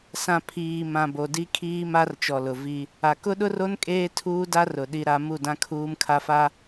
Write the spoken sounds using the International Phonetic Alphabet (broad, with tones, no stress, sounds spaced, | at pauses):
s ã˨ pʰ iː˨ m ã˨ b o˨ d i˦ kʰ iː˦ m a˦ r t͡ʃ ɔ˨ l ʊ˨ v i˦ | a˨ k ʊ˦ ɗ ʊ˦ r o˦ n kʼ eː˦ tʰ uː˦ d a˦ r ʊ˨ ɗ i˦ ɾ a˦ m u˦˨ d ã˦ kʰ uː˦ m kʰ a˦ f a˦